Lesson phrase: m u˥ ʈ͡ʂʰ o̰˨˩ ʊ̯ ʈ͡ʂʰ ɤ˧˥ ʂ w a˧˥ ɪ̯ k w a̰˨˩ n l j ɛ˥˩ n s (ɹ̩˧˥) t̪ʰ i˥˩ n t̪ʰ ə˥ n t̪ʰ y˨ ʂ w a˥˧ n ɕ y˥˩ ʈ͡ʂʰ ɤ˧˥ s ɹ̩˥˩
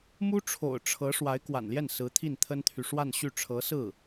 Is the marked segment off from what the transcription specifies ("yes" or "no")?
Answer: no